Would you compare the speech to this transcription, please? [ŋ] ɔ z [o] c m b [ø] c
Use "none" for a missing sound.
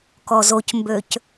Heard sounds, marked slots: k, o, ø

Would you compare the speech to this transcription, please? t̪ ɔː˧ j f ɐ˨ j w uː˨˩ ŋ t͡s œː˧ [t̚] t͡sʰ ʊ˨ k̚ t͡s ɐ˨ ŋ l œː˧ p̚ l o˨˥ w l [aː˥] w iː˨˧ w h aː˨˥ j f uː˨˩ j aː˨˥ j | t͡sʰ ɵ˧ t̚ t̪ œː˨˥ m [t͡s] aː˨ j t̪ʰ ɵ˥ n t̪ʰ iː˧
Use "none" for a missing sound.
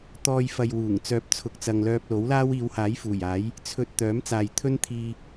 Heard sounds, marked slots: p̚, aː˥, t͡s

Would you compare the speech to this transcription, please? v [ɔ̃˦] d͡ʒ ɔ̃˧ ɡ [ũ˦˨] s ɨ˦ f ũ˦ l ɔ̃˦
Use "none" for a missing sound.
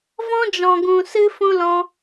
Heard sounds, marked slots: ɔ̃˦, ũ˧

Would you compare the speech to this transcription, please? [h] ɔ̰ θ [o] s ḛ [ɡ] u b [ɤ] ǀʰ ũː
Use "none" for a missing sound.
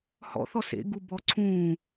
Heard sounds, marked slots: h, ɔ, ɡ, ɔ

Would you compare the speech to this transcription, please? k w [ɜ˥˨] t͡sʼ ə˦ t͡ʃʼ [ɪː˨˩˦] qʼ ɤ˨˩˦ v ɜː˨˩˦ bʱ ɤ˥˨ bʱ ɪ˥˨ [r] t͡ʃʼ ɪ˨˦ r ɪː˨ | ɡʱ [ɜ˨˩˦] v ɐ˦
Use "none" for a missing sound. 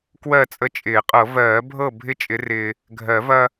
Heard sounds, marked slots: ɜ˥˨, ɪː˨˩˦, none, ɜ˨˩˦

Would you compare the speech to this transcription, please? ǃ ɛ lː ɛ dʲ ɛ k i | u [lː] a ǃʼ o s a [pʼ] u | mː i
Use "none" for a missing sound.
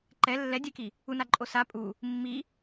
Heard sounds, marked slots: n, pʼ

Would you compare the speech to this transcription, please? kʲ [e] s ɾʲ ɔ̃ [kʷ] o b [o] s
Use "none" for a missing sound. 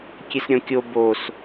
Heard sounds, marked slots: e, kʲ, o

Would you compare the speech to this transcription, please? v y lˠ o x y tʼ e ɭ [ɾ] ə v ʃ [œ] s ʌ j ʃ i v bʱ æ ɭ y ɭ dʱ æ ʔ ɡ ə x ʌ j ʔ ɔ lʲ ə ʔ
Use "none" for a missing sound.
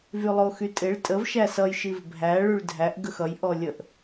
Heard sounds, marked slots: tʼ, æ

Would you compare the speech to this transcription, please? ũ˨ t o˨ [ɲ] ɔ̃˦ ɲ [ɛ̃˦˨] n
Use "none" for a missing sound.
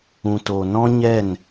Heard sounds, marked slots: n, ɛ˦˨

